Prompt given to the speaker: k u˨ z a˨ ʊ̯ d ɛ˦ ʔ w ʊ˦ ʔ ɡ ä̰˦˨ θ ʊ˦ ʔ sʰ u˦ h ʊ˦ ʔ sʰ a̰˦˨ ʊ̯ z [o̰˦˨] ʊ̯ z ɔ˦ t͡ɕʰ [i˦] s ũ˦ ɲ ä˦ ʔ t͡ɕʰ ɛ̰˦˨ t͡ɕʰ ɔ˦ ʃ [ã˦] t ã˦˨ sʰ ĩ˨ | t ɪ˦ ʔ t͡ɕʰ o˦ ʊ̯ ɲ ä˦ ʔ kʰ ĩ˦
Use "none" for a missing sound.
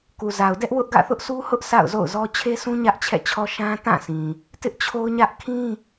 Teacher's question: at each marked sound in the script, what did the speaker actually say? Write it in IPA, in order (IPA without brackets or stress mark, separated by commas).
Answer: o̰˦˨, e˦, ã˦